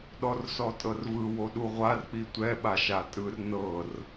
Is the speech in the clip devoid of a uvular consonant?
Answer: no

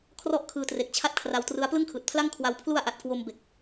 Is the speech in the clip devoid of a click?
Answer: yes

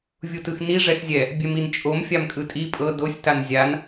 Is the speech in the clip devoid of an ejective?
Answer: no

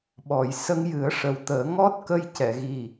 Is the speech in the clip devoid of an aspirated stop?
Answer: yes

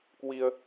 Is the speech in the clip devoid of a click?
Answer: yes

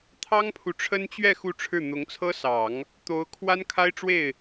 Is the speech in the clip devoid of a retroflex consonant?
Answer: no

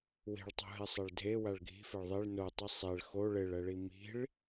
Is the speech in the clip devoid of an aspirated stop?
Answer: yes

